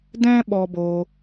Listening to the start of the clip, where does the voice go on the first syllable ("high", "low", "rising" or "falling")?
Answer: high